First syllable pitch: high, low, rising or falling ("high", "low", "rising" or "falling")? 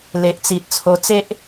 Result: low